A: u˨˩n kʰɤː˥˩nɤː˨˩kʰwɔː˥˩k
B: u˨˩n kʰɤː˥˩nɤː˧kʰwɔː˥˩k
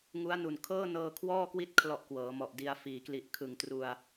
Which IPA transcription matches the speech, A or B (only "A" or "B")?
B